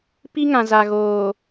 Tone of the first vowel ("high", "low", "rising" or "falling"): high